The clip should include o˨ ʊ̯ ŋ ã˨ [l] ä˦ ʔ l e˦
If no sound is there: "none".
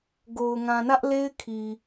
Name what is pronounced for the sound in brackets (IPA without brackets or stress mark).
n